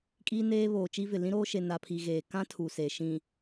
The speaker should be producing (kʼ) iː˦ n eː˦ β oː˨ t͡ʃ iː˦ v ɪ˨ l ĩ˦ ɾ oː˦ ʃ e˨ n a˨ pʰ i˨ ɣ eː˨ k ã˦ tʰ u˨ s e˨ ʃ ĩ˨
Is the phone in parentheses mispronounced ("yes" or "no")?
no